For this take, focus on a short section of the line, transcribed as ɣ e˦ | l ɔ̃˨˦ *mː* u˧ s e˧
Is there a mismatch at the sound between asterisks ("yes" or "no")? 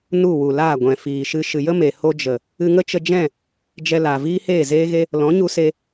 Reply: yes